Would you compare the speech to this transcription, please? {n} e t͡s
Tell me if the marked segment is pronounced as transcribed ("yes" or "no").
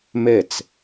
no